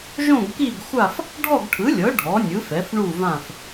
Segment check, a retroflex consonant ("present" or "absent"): present